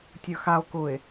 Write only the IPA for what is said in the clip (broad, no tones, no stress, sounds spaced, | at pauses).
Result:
tʲ ə˞ x a o̯ k ʊ e̯